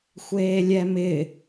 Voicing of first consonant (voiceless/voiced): voiceless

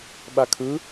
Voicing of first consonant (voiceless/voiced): voiced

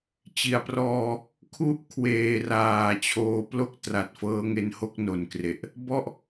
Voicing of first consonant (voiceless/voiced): voiceless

